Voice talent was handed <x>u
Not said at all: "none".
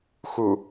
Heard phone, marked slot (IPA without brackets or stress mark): x